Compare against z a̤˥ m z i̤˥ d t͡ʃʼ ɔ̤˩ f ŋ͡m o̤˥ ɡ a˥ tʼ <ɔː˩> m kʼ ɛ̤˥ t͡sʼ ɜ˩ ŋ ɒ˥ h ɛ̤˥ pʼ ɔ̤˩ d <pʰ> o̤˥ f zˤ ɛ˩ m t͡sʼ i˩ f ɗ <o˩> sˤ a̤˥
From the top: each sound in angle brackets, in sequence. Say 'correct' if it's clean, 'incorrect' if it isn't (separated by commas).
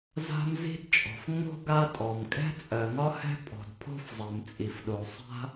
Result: incorrect, correct, correct